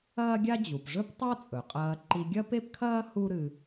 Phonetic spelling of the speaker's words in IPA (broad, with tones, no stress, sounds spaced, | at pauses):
ɐː˥ ɡʲ a˥ d͡ʑ u˩ p ʐ ɵ˥ p tˤ a˥ t͡sʼ ɵ˩ qʼ ɐː˧ ǃ i˧ ɡʲ ɐ˥ p e˥ p kʰ ɐː˥ h u˥ ɾ ɨ˧